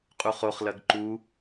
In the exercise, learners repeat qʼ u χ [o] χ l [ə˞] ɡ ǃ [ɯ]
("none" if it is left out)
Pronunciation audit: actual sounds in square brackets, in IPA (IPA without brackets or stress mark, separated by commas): o, ɐ, u